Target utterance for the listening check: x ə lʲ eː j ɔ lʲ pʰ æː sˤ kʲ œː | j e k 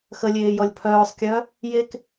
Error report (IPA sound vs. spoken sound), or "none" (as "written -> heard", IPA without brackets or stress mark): æː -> œː